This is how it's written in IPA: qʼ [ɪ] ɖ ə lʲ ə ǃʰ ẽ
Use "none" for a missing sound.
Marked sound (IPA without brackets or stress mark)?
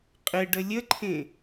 ɪ